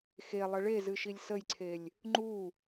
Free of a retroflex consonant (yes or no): no